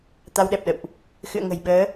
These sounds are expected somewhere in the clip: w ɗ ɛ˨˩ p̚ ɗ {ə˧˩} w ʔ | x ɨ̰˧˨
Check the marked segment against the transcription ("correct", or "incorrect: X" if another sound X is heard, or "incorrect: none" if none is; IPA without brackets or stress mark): incorrect: ə̰˧˨